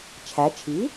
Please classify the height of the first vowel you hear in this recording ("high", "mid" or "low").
low